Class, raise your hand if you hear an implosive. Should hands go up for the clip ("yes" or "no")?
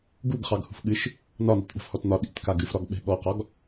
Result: yes